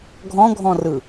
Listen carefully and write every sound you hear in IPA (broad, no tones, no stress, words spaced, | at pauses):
ɡʱɔ̃ɡʱɔ̃rɯ